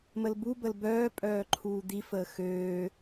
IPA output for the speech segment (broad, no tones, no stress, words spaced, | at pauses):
məlbubəl bœːpʼœː ǃʰuːd̪ifəː xøː